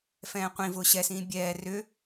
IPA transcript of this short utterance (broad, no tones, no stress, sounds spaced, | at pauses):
f ɛ̃ː qʷ ĩ v ʊː ɕ ɛ s ĩː bʲ ɛː r ʏ